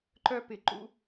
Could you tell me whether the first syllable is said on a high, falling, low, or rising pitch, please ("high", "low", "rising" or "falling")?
high